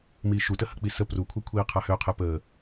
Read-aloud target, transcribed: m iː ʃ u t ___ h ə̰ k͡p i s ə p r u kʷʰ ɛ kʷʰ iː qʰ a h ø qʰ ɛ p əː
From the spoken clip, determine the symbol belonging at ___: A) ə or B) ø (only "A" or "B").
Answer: A